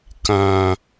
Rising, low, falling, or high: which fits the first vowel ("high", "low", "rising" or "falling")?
high